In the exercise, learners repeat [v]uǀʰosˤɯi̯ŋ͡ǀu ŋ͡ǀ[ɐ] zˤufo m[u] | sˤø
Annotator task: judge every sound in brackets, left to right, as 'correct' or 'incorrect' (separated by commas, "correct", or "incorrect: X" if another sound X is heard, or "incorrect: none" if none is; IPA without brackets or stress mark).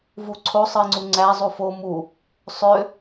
correct, incorrect: æ, correct